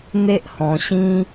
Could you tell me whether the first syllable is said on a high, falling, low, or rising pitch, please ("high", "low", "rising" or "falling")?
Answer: high